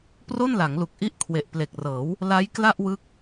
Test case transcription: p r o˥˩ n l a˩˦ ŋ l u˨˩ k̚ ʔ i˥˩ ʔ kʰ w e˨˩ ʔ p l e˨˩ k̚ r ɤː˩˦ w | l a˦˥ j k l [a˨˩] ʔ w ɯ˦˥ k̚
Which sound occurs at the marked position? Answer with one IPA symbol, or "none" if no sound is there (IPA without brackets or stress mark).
a˥˩